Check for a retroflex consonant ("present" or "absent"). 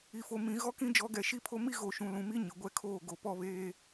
absent